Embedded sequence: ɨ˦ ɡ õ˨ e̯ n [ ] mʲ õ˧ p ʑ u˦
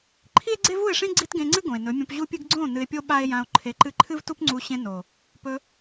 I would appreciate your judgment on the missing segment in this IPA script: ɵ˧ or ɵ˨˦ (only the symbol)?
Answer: ɵ˨˦